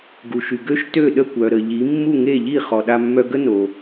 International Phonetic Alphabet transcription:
ɡ u˩ ʃ y˩ ɡ ø˥ ʃ t ø˥˩ ɗ ə˥˩ kʷ œ˩ ɾ ə˩ ʎ i˩˥ mː u˥˩ ŋ e˥˩ ʎ i˥˩ χ ɔ˩ ɗ a˧ mː œ˧ ɡ ə˥ n o˩

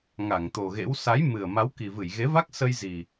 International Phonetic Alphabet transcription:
ŋ a˧˩ ŋ t̪ o˨˩ ɣ ḛ˧˥ w s a˨˦ j m ɨ˨˩ ə̯ m a˨˦ w k i˨˩ v ɨ˧˩ j ɣ e˨˦ v a˦˥ k̚ s ə˧ j z i˨˩

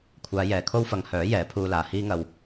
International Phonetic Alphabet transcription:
kʷʰ aː˨˧ j ɛː˨˩ kʰ o˥ w f ɐ˨˧ ŋ h œː˨˥ j ɛː˨˥ pʰ uː˧ l aː˨ h iː˥ ŋ ɐ˧ w

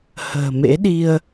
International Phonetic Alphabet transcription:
h ə̤ː˨˩ m ḛ˧˥ ɗ i˧ ə̯

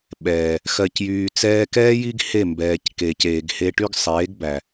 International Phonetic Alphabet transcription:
ɓ ɛː˨ | x ɜ˨ c j yː˨ t͡s ɛː˧ k ɛː˦ j i˦ ɡ h e˦˨ m b ɛː˨ c k eː˨ c eː˨ ɡ h e˧ ʈ y˦ ɡ sˤ eː˨˦ ɡ b æ˨

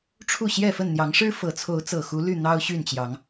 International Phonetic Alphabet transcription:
ʈ͡ʂʰ u˥˨ ɕ j ɛ˥˨ f ə˥˨ n n̪ j ɑ˨˦ ŋ ʂ ɻ̩˦ f ɤ˨˩ t͡sʰ o˨˦ ʊ̯ t͡s ɤ˨˩ x u˨˦ l y˥˨ n̪ ɑ˦ ʊ̯ ɕ y˥˨ n t͡ɕ j ɑ˨˦ ŋ

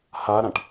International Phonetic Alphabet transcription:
h a ɾ ã ʈ

